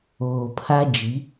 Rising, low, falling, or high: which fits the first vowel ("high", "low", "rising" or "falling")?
low